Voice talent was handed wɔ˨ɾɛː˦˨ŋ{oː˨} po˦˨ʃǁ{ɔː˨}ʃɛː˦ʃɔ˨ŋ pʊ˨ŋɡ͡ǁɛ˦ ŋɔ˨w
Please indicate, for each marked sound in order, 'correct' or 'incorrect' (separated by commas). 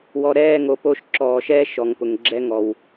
incorrect, correct